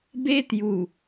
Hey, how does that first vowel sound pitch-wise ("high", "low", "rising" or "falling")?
high